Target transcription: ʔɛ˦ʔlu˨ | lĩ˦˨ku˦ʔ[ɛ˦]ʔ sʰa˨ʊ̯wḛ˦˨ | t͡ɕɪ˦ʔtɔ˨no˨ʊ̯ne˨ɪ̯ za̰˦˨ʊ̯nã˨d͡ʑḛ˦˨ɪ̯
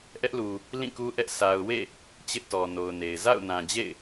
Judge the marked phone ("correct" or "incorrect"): correct